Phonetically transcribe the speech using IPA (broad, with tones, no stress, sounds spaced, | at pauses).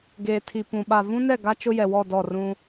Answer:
ɡ eː˨ tʰ i˨ p ũ˨ ɓ a˨ v ũ˦ n ɛ˦˨ ɡ a˦ t͡ʃ ʊ˦ j ɛ˨ w ɔ˦˨ d ɔ˦˨ r ũ˦